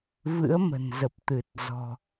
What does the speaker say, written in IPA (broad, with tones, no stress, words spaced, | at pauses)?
vɨ̰˧˥ə̯ mə̤˨˩nzə˨˩p̚t̪ɨ˨˩t̚ zɔ̤˨˩